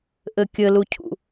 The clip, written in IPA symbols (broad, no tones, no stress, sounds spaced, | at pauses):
ʔ ɘ kʲ ɘ l u cʰ ṵ